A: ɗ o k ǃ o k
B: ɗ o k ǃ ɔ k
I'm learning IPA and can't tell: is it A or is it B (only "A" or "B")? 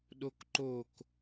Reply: A